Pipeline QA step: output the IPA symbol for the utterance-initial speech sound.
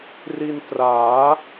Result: r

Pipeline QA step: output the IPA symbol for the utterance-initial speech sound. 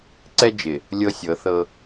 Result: ǀ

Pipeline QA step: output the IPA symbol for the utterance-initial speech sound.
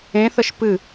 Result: ẽ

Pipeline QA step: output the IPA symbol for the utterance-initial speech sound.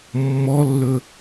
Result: mː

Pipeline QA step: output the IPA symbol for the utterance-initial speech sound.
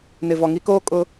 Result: n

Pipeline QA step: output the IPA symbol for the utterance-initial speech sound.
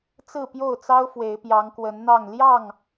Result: t͡s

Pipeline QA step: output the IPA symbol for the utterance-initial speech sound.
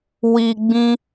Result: w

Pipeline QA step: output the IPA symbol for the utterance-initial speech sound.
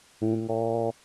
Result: ũ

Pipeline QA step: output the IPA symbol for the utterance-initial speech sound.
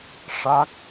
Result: ʂ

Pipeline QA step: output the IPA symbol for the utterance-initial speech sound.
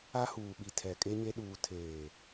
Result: a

